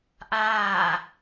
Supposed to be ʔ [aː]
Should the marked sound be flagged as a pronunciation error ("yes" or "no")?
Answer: no